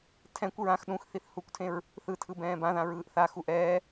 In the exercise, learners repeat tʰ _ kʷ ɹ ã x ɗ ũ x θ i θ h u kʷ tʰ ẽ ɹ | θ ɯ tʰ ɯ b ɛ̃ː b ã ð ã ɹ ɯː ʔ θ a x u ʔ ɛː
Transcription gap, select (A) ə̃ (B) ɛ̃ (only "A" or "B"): B